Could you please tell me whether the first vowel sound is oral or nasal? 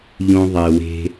nasal